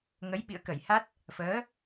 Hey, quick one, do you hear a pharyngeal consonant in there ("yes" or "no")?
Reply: no